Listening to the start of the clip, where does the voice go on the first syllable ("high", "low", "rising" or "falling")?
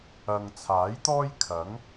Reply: low